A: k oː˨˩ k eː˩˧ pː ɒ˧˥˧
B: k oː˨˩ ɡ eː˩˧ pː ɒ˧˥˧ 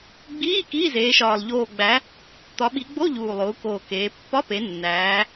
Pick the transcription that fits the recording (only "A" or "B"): A